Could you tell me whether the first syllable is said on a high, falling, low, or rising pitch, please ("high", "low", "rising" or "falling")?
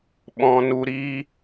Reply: low